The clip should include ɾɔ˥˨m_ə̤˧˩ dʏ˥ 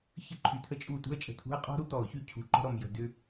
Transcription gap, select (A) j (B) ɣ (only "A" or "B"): A